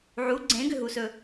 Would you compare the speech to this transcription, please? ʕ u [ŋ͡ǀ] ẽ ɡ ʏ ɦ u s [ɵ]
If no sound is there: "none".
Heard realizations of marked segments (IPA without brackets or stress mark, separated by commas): ɡ͡ǀ, ɵ